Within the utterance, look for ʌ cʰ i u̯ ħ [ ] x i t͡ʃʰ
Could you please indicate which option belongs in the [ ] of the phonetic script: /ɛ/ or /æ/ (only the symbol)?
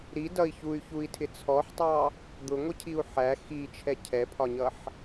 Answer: æ